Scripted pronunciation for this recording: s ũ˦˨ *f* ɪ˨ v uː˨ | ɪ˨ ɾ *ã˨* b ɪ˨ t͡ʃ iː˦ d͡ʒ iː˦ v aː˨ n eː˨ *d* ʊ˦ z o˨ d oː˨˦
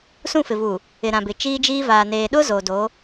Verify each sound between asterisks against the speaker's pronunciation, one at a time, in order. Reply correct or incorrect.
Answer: correct, correct, incorrect: ɗ

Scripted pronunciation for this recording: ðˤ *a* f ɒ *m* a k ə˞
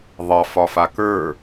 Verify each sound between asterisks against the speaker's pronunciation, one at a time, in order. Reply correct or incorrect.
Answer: incorrect: ɑ, incorrect: f

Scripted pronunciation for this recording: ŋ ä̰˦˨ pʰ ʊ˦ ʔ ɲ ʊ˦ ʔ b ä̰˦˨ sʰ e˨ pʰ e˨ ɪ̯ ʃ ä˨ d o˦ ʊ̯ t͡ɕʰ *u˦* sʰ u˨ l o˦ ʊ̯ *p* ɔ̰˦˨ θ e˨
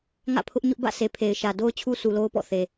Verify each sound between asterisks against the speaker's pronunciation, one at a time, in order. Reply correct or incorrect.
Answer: correct, correct

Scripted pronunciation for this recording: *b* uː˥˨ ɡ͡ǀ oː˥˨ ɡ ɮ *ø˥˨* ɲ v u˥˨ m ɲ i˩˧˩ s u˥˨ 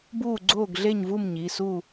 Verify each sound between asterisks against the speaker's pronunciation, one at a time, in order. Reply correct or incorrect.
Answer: correct, incorrect: e˥˨

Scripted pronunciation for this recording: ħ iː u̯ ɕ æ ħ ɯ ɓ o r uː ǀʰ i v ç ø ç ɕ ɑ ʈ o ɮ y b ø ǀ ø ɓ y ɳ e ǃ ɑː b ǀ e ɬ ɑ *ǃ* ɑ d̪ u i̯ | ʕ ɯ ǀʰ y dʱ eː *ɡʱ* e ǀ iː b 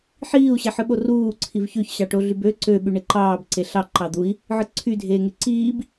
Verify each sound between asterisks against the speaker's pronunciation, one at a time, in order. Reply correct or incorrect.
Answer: correct, incorrect: ŋ

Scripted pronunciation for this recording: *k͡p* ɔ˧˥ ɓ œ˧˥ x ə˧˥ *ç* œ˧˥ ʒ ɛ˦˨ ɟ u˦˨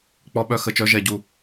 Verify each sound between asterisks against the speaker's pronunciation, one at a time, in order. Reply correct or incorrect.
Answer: correct, incorrect: t͡ʃ

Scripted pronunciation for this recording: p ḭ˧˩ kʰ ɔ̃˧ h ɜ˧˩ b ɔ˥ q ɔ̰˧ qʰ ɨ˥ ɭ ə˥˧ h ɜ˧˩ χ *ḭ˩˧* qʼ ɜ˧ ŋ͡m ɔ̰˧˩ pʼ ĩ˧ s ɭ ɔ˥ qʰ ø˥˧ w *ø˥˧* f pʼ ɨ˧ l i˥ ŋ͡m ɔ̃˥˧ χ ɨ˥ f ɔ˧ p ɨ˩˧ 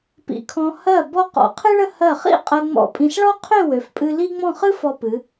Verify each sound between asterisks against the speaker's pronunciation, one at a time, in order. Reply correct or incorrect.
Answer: incorrect: ḭ˥˧, incorrect: ø˩˧

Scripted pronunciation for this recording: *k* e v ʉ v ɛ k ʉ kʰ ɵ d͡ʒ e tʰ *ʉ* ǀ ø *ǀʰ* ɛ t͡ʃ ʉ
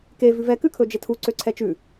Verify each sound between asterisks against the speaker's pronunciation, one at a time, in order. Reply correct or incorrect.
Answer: correct, incorrect: u, correct

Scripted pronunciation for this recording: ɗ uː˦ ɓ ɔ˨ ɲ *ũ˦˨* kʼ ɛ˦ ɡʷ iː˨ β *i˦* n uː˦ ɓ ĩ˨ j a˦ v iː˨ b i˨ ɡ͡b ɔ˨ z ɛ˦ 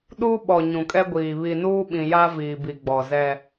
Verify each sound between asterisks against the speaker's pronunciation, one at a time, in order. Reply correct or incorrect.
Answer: incorrect: ũ˨, incorrect: i˨

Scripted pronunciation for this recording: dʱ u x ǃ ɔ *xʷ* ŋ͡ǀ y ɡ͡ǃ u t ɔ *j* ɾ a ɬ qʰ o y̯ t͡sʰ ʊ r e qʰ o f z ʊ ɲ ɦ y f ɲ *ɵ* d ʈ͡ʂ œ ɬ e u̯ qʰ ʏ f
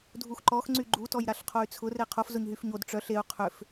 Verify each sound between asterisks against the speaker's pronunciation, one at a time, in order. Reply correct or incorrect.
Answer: incorrect: x, correct, incorrect: o

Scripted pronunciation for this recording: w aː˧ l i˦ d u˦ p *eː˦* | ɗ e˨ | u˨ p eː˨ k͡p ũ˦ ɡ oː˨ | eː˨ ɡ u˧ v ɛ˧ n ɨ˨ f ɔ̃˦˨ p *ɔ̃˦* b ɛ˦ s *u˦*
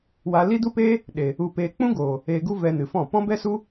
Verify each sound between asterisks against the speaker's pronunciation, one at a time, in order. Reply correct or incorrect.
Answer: correct, correct, correct

